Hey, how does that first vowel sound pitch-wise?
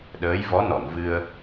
rising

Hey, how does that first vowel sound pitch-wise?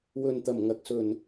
low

